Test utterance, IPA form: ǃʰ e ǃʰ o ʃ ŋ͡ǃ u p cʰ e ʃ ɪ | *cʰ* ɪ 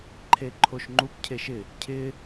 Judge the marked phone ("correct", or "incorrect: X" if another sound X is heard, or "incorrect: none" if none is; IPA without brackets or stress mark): correct